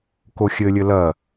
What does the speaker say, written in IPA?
k o xʲ ɘ lʲ ɘ l ɐ

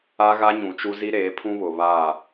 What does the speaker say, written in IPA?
a˦ ɣ a˦ ɲ ũ˨ t͡ʃ u˦ z i˦ ɾ eː˨˦ pʰ ũ˦ β ʊ˨ β a˦˨

